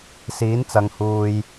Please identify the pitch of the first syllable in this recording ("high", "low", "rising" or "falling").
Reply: rising